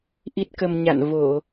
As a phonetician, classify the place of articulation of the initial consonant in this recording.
glottal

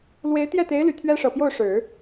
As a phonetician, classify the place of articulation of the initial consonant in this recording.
alveolar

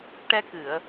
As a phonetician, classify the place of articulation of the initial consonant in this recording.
retroflex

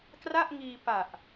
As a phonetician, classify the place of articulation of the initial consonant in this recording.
velar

